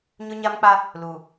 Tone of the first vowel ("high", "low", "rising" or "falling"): high